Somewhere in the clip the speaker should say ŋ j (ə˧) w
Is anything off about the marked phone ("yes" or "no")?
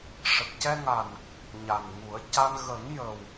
yes